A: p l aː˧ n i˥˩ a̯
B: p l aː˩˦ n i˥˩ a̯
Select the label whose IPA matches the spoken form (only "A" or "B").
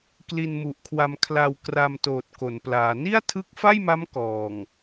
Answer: B